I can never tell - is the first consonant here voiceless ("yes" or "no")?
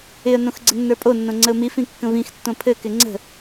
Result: no